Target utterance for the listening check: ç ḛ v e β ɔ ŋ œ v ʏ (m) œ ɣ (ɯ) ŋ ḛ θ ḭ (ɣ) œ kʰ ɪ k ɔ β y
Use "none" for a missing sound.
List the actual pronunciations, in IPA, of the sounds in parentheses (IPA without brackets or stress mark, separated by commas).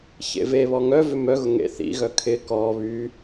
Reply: m, ʊ, ɣ